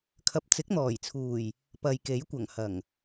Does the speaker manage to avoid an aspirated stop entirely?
no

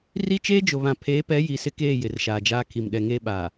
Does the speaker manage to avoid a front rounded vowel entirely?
yes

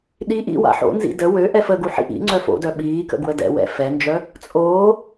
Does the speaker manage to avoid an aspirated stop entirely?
yes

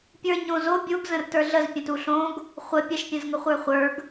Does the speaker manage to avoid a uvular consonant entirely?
no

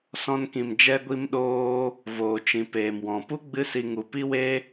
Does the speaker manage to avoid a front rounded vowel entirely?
yes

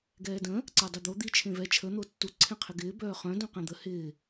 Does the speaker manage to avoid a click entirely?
no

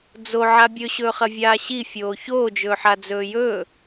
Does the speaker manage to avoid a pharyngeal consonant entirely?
no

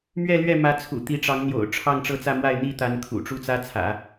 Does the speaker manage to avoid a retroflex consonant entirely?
no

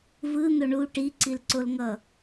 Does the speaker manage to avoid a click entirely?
no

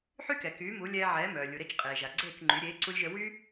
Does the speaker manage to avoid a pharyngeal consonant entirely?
no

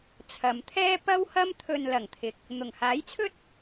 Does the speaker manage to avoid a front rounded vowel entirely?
yes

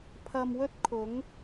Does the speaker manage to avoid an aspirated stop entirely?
no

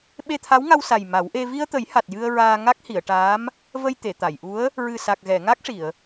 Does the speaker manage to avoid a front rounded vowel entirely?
yes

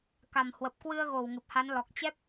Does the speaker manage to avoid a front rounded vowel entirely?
yes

